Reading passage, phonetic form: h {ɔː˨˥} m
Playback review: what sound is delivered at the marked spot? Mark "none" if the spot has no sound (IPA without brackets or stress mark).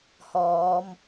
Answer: ɔː˨˧